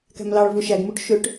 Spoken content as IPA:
k æ̤ m l ɑ ɭ v u ʃ æ ɡ m u ʈ ʃ ø ʈ

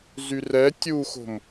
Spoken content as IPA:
z y r ɛ tʲ u x o̤ m

